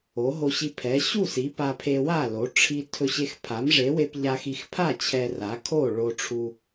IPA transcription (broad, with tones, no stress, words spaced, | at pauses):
o˩˥ɦo˧ɕi˧ pʰɛ˩˥ ɕu˥˩si˩˥ pa˧pʰe˧wa˥˩lo˩˥ ʈ͡ʂʰi˧ tʰɵ˧ɕe˧x pʰa˩˥mʐe˩˥we˧p ʎa˧xi˧xpʰa˥˩ t͡ɕʰɛ˧ra˩˥kʰo˥˩ ɭo˧ʈ͡ʂʰu˧